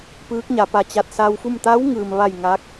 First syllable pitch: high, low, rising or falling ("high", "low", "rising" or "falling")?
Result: rising